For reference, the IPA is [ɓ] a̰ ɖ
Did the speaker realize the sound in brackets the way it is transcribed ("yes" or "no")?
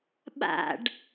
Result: yes